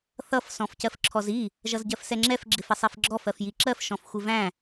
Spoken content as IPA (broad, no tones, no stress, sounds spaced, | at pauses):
θ ʌ f s ɔ̃ f c ɜ f ǁʰ ɔ z i | ʒ ʌ z ɟ ɜ f s ɛ ŋ͡ǁ ɛ f ɡ͡ǁ ɪ f ɪ sˤ i f ɡ͡ǁ ɔ f ɜ f j i ǁ ɜ f ʃ ɔ̃ f xʷ ɪ v æ̃